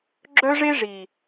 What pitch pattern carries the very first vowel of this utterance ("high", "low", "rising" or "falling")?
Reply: high